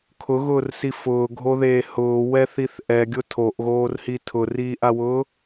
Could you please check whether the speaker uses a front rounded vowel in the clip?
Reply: no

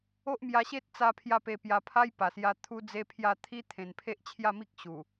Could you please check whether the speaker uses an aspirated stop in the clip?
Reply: yes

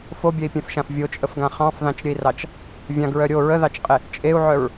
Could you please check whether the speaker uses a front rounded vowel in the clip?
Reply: yes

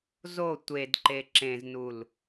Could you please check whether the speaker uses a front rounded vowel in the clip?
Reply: no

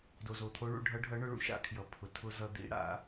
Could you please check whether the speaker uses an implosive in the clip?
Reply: no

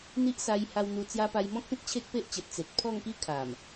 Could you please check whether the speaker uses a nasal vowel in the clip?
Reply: yes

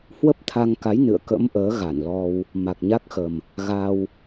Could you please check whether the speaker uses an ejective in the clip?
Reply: no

